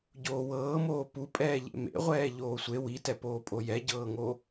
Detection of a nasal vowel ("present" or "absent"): absent